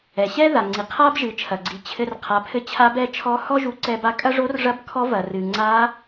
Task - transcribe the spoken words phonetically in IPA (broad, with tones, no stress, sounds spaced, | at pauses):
ɛ˩ ɕ ɛ˥ ð a˩ ŋ͡ǀ i˩ qʰ a˥ b ʒ ɨ˩˧ t͡ʃʰ ɐ˩ ɡ͡ǀ i˩ t͡ɕʰ ɘ˧ r qʰ a˩˧ pʰ ɘ˧ t͡ɕʰ a˧˥ b ɛ˧˥ t͡ʃʰ ɔ˧˥ h ɔ˥ ʒ u˧ ǀ ɛ˧ b a˧ kʼ ɐ˥ ʐ o˧˥ r ʐ ɐ˧˥ b kʰ ɔ˧˥ v ɐ˩ r ɨ˩ ŋ͡ǀ a˧˥